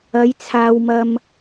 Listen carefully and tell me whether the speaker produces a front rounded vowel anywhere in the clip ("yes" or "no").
no